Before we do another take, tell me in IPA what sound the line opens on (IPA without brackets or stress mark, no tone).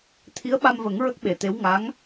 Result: t̪ʰ